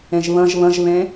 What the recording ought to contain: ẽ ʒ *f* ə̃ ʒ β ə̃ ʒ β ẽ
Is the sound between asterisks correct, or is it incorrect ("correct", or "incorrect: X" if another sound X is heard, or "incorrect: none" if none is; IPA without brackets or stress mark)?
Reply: incorrect: β